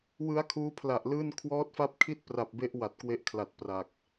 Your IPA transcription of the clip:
w ɯ˦˥ a̯ kʰ uː˦˥ pʰ l a˨˩ ʔ l ɯː˥˩ n kʰ w ɔː˦˥ t̚ f a˦˥ p̚ kʰ i˥˩ t̚ p r a˨˩ p̚ b e˦˥ ʔ w a˨˩ t̚ k w e˦˥ ʔ kʰ l a˨˩ t̚ p r a˨˩ k̚

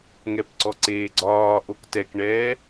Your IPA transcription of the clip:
ŋ ɛ p ǀ ɔ ǀ eː ɡ͡ǀ ɒː ʔ o k t ɛ k ɳ ɛː

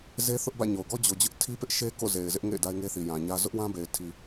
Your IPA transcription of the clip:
z e˦ θ ʊ˦ ʔ b ä̰˦˨ ɲ o˨ ʊ̯ ɡ ɔ˦ d͡ʑ o˨ d͡ʑ ʊ˦ ʔ tʰ i˦ p ɪ˦ ʔ ʃ e˦ k o̰˦˨ z e˨ ɪ̯ z ɪ˦ ʔ ŋ ḛ˦˨ ɪ̯ d a˦ ɪ̯ ŋ e˦ θ i˨ j ã˨ ɲ ä˦ z ʊ˦ ʔ w ã˦ b e˨ ɪ̯ tʰ i˨

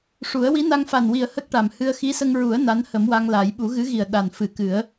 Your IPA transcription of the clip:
ʂ u˨˩˦ ə̯ w i˧˥ n a˧ ŋ f a˨˩ n w i˨˩ ə̯ h ə˦˥ k̚ ʈ a˨˩ m h ɨ˧ ə̯ x i˧˥ s ə˧ ŋ ɹ u˨˩˦ ə̯ n a˧˥ n h ə˨˩˦ m w a˧ ŋ l a˨˩˦ j ɓ u˨˩˦ ɣ ɨ˧˥ ɣ i˨˩ ə̯ ɗ a˨˩ n f ɨ˨˩˦ k ɨ˨˩˦ ə̯

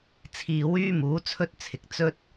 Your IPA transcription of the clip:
t͡sʰ iː˨ w yː˥ m uː˨˥ t͡sʰ ɵ˥ t̚ t͡sʰ ɪ˨˥ k̚ t͡s ɵ˥ t̚

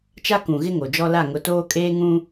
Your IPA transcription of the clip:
t͡ʃ a˦ k ũ˨ ɣ ɪ˦ ŋ o˨ d͡ʒ ɔ˦ l a˦˨ ŋ ʊ˨˦ t oː˦ kʼ eː˦ ŋ ũ˦

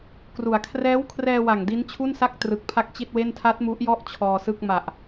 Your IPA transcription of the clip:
k r u˨˩ a̯ kʰ r ɛː˦˥ w kʰ r ɛː˧ w a˨˩ ŋ d i˦˥ n t͡ɕʰ u˥˩ n s a˥˩ k̚ t r ɯ˨˩ k̚ pʰ a˥˩ k̚ t͡ɕ i˥˩ t̚ w e˥˩ n tʰ a˦˥ t̚ m u˦˥ ʔ j ɔ˥˩ ʔ t͡ɕʰ ɔː˧ s ɯ˥˩ k̚ m a˨˩ ʔ

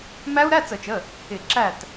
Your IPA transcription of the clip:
m æ˦˥ u̯ ɾ æ˧˥˧ t͡s ə˧˩˧ t͡ʃ ə˩˧˩ | ɪ˧˩˧ ǁ æ˥˩ t

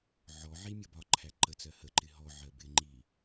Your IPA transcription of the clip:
ʕ ɔ ʕ i mʲ ʌ b ɒ ǃʰ æ ǃ ə t͡s ɜ h ə ǃ ɪ ɦ ɔ ʕ ɜ b ɪ ŋ͡ǃ i

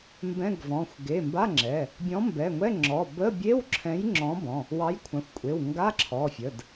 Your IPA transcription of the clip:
m b ɛ̃˧˥˧ ɡ v ɔ̃˩˧˩ xʷ ɡ e˩˧˩ m b a˧˥˧ ŋ͡ǁ ɛ˩˧˩ | bʲ ɔ̃˨˥ m b ɛ˩˧˩ ŋʷ ɛ˧˥˧ ŋ͡ǁ ɔ˩˧˩ b ə˧˥˧ bʲ e˧˥˧ w ǁʰ ɛ̃˨˥ j ŋ͡ǁ ɔ̃˨˥ b ɔ̃˩˧˩ | w ɑ˨˥ j kʷʰ ã˩˧˩ xʷ kʷʼ e˩˧˩ w ŋ ɡ a˧˥˧ ǁʰ ɔ˩˧˩ fʲ ə˩˧˩ d

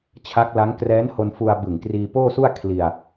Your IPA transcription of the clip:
t͡ɕʰ a˦˥ k̚ l a˦˥ ŋ k r ɛː˦˥ n h o˧ n f u˧ a̯ b ɯ˨˩ ŋ k r iː˧ p oː˥˩ s u˥˩ a̯ kʰ l i˧ a̯

